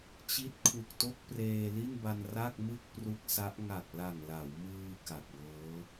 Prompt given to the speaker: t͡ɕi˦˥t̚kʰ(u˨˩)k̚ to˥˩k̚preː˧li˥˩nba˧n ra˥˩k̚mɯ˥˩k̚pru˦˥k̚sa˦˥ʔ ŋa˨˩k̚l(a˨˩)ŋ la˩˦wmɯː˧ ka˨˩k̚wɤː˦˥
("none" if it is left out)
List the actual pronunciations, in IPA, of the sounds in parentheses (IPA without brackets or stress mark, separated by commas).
u˨˩, a˨˩